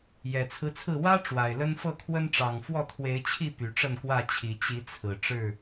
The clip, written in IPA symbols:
jɛ˨˩t͡sʰɹ̩˦t͡sʰɹ̩˥˨ wä˦ ʈ͡ʂwa˨˩ɪ̯lə˦n fɤ˥˨kʰwə˦nʈ͡ʂɑ˨˩ŋ fwɔ˥˨t̪ʰwe˨˦ɪ̯t͡ɕʰi˥˨ py˨˩ʈ͡ʂə˥˨nkwä˥˨t͡ɕʰi˨˩ t͡ɕi˨˦t͡sʰɹ̩˨˩ ʈ͡ʂɻ̩˥˨

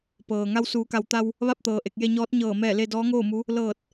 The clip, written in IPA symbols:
pɤː˩ ŋa˧wsuː˩˧ka˩˧wt̪a˧w | ʋa˥˨p̚t̪ɤː˩ ʔe˧˩k̚je˧ɲɔː˧˥t̚ ɲɤː˧˩ mɛː˧˩le˧ dɔː˧˥ŋoː˥˨mu˧˥ | lɤː˧˩t̚

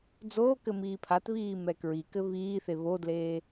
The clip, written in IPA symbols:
d͡zoːkɘ miːpʰatβiː mɛkɹikɘ βiːθe βodleː

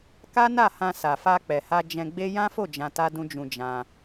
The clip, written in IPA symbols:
ka˦na˦˨hã˧ sa˨fa˧k͡pɛ˨ha˧ d͡ʒɛ̃˧ɡ͡be˦ jã˦fo˦˨ d͡ʒã˧ta˦dũ˦d͡ʒũ˧ d͡ʒã˧

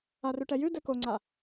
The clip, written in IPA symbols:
arʉʈɛjʉ dɛkoŋ͡ǀa

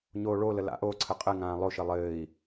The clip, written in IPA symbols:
ɲoːɭolə la̰ʔoǀʰə qʼɘŋãː lˠoʃɘ lˠɘːi̯

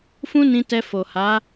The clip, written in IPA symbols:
fũ˦nĩ˧ tɛ˧fo˨ha˨˦

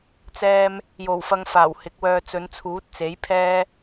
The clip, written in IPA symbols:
t͡sɛː˧m | jo˨˩wfɐ˨ŋ faː˨˩whɪ˨˥k̚wœː˧ t͡sɵ˨˧nt͡sʰuː˨˥t̚t͡se˨˥j pʰɛː˥

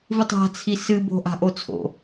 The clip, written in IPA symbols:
vɨtˤa̤ t͡sʰisɨ bo̤ʔa̤ ʔot͡sʰo̰

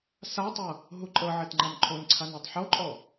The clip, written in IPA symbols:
satˤɤ | ɦuǃʼɤʕɛt ŋ͡ǃamǃʰonǀʰan otˤħoǃʼɔ

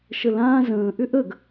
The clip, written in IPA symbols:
ʃəlãː zə̃ː ʔʏʔəɡ

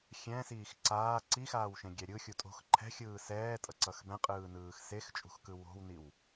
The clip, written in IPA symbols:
xʲɛ̃siːx ǀaː ǀixaːwʃẽɡʲɛ ɾʲɯxʲu tʼo̤x ǃʰɛ̤xʲɯː sɛːtʼʌǀʌx bɛ̃qʼɯːnɯːx sext͡ʃʼṳxkɯ wo̤wniw

